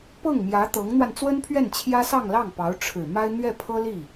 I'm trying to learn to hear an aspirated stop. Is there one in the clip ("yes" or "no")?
yes